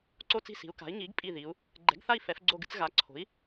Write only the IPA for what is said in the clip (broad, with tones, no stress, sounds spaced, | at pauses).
ǀ o˥˨ t͡s i̤˥˨ s i̤˩˥ u̯ k a̤˩˥ i̯ ŋ i˩˥ ɡ pʼ i˧˩ ð i˩˧ u̯ | ɡ͡ǃ ɛ̤˩˥ ɡ θ a˥˨ i̯ f ɛ˩˧ f ɡ͡ǀ o˧˩ ɡ ɨ˥˨ t͡s ɣ a˩˥ ǀʰ o̤˩˥ i̯